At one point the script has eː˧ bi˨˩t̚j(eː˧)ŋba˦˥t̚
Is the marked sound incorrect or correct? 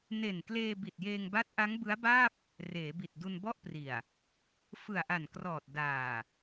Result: correct